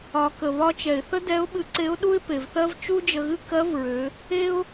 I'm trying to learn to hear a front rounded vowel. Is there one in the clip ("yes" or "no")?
yes